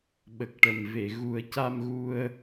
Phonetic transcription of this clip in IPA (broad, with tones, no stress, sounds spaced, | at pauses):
ɓ ə˨˩ k̚ ʈ ə˨˩ m v e˨˩˨ ɣ u˨˩˦ ə̯ c a˧ m ɣ u˧ ə̯